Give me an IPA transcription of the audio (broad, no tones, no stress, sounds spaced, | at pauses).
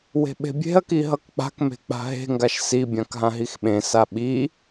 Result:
w e̤ ɓ e̤ bʲ e̤ ɐ̯ k i ɦ ʌ k k͡p a̤ k m e̤ k͡p a̤ ɦ e̤ ŋ ɡ a ʃ s i bʲ ã k ɦ ã ɦ i x ɓ ẽ s a ɓ i